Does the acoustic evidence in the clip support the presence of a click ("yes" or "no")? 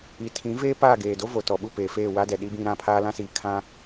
no